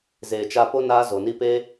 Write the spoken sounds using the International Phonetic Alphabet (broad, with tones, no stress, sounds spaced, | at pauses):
z eː˨ t͡ʃ a˧ p o˦ n aː˦ z o˨ n i˦ p e˦